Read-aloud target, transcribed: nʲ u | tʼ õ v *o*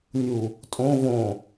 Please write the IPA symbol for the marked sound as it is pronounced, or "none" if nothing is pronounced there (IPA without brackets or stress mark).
õ